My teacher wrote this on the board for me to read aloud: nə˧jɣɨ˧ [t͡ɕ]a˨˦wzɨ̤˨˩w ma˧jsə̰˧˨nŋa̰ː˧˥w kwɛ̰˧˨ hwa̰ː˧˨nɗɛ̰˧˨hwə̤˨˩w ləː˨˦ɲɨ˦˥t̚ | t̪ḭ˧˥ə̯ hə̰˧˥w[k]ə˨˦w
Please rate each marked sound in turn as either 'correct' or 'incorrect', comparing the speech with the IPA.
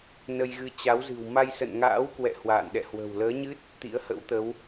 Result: correct, incorrect: t̪

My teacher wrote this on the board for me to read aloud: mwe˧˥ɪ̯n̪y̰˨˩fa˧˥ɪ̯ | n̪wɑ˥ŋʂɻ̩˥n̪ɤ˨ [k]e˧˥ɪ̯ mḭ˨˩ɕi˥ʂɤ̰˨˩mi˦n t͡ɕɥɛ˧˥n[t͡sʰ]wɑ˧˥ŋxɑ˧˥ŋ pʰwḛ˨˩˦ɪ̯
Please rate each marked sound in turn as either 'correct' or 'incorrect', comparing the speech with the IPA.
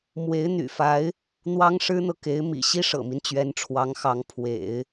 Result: correct, incorrect: ʈ͡ʂʰ

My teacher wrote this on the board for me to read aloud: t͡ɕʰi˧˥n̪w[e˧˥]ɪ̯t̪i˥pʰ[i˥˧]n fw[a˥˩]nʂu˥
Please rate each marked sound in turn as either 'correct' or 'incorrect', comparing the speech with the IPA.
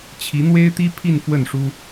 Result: incorrect: e˥, correct, incorrect: ə˥˩

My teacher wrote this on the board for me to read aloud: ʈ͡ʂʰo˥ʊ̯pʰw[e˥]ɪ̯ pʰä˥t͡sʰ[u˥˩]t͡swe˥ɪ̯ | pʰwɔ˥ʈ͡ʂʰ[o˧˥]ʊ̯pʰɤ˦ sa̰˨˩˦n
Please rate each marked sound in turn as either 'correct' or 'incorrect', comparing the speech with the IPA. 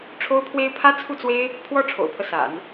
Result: correct, correct, incorrect: o̰˨˩

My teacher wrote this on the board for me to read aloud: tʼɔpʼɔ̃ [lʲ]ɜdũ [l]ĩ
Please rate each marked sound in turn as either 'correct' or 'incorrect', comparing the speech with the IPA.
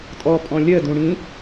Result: correct, incorrect: ɽ

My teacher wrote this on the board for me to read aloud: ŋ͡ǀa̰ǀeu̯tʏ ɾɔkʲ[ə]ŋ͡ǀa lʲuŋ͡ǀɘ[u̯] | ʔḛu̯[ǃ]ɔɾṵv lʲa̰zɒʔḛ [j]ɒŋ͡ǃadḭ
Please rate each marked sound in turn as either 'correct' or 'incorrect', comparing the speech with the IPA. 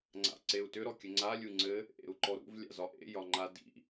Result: correct, incorrect: none, correct, correct

